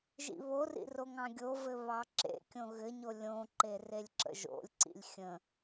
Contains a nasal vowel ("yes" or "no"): yes